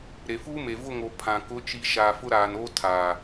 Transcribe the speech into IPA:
ɾ e˨ f uː˦ m e˨ v ʊ˦˨ ŋ o˨ pʰ ã˨ k ʊ˨˦ t͡ʃ i˨ ʃ aː˨ f ʊ˦ ɾ aː˨ n oː˦ tʰ aː˨

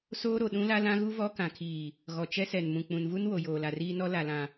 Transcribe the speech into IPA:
s oː˦ ɾ o˨ ɗ ũ˦ l a˦ l ã˦ ɣ u˦ v ɔ˦ k ã˨ kʰ iː˨ | ɣ ɔ˨ t͡ʃ ɛ˦ s ɛ˨ n m ũ˨ k͡p ũ˨ n v u˦ n w o˨ j oː˨ l a˨ r iː˦ n ɔ˦ l a˨ l ã˨

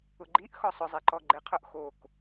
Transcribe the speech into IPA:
ʊ ɡ͡ǃ i ʔ x ɔ sˤ ʊ zˤ e ǃ ɔ ɡ͡ǃ e qʰ ʊ ʔ x o k

